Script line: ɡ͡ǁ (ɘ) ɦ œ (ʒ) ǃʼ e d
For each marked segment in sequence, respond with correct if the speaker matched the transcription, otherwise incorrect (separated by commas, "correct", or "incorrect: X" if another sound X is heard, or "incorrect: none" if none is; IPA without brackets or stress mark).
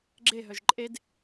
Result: incorrect: e, correct